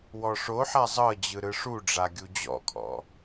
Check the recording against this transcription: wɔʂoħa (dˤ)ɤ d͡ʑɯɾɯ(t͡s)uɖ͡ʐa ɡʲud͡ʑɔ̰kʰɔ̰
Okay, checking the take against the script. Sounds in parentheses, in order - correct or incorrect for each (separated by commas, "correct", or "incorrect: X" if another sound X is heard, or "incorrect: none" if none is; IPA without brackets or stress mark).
incorrect: zˤ, incorrect: ʂ